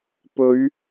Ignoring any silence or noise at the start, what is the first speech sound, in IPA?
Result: p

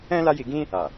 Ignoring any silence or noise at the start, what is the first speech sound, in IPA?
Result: ɛ̃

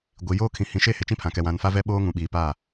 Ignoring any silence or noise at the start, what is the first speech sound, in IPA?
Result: ɡʷ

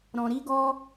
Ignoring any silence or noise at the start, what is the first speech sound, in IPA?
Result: ɾ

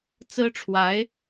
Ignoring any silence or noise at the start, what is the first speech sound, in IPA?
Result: t͡s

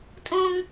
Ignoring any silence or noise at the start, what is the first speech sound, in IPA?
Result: tʼ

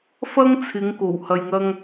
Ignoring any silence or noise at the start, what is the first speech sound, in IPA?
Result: f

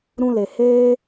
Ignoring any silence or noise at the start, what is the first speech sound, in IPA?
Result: ɾ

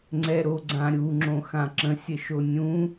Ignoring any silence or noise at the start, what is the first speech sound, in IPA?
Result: ŋ͡ǀ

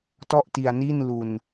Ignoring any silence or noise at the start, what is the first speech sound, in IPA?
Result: t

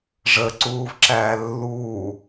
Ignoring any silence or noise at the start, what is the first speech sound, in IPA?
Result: ʐ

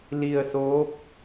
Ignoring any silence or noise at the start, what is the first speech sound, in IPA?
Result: l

